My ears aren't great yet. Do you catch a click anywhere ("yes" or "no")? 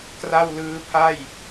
no